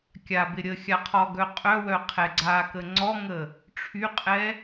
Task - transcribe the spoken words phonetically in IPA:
kʲ a b ɪ ɾʲ ə xʲ a qʰ ɔ ɡ œ qʼ œ w œ qʰ ɛ ɡ͡ǀ a k ə ŋ͡ǀ ɔ ŋ ə | ʈ͡ʂʰ y qʼ ɛ

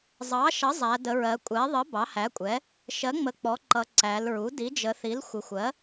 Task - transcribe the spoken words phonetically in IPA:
zˤ ɑ˩˥ ʃ ʌ˩˥ zˤ æ˩˧ d ə˩˧ ɹ ɜ˩˧ kʷʼ ɛ˩˥ ðˤ ə˩˥ b ɑ˩˥ h æ˩˥ kʷʼ ɛ˩˥ | ʃ ɜ˩˥ ŋ͡m ə˩˧ k͡p ɔ˩˥ ǃ ʌ˩˧ ǀ æ˩˧ l ɹ u˩˥ d i˩˥ d͡ʒ ə˩˧ θ i˩˥ l xʷ ɪ˩˧ xʷ ɜ˩˥

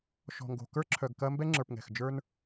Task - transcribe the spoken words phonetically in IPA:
ʃ ɔ̤˨ ŋ ɡ o̤˨ k ə˞˦ ǁʰ œ˨ ɡ k ɐ˦ m b ɛ˦ ŋ͡ǁ ə˞˨ p ŋ ɛ̤˨ x d͡ʒ ə˞˦ n

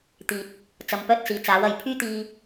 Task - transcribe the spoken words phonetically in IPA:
t̪ iː˨ t̚ | t͡s ɐ˨˧ m p œː˥ t̚ s iː˨ t͡s aː˨˥ w ɐ˨ j pʰ yː˥ t̪ iː˧

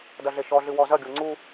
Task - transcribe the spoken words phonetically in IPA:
d ɐ ɮ e ʃ ɔ ɮ ɨ w ɔ z ɐ ɡʲ o ŋ͡ǀ u

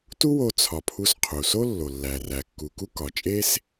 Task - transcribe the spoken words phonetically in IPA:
t u˥ w o˧ t͡sʰ ɒ˩ pʰ u˧ s qʰ u˩ s o˥ lː o˩ lː æ˩ r æ˩ kː u˩ k u˥ k ɒ˩ t͡ʃʼ e˥ s

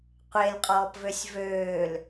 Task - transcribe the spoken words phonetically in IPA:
qʷ e l qʼ ɔː p v ø sʲ v øː l

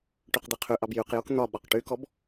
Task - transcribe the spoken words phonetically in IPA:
ʈ y q d̪ e qʰ y ʔ ɑ b j y q j o k n̪ ɒ ɓ ɒ q ʈ y k ɔ b

